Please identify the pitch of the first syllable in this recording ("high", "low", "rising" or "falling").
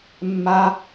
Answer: high